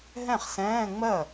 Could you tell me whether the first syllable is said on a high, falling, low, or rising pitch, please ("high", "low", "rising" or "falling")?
falling